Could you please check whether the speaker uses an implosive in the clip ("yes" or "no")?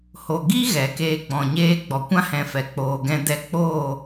no